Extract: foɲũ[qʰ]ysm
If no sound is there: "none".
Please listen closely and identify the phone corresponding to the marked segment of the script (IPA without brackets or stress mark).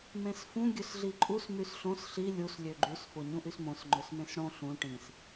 ʔ